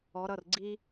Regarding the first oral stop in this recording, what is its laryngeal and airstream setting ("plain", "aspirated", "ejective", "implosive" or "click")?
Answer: click